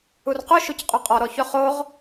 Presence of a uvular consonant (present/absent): present